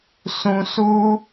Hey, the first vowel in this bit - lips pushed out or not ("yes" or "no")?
yes